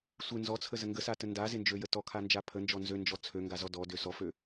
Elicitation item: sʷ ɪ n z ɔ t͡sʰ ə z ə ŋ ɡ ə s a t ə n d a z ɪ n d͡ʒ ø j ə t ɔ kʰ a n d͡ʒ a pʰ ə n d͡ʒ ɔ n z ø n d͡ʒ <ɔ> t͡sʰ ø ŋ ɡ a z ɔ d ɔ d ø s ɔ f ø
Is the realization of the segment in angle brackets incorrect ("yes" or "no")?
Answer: no